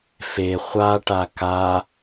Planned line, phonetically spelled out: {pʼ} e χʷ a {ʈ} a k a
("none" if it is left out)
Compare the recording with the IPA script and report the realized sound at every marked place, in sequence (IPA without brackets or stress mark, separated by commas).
f, ʈ